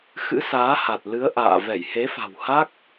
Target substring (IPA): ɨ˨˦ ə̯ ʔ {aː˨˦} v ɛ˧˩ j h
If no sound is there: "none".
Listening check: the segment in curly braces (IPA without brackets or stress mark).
a̰ː˧˨